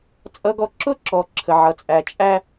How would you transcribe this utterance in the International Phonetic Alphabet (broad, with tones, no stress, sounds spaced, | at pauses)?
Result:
t͡sʼ ʌ˦ ɡ ɔ˦ ǁ ʊ˦ ǁ ɔ˨ ǁʰ ə˨ ʕ ʌ˨ t͡sʼ æ˨ t͡ʃʼ æ˦